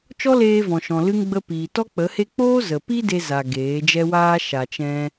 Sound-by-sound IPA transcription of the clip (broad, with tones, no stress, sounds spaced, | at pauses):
t͡ʃ ɔ˦ l eː˧ v ɔ̃˨ ʃ ɔ̃˨ l ɨ˧ ŋ ɡ͡b ə˧ p iː˨ t ɔ˦ k͡p ə˨˦ h e˦ k͡p oː˦ z ə˨ p i˦ d e˧ z a˨ ɡ eː˨˦ d͡ʒ ɛ˦ w aː˦ ʃ a˨ t͡ʃ ɛ̃˧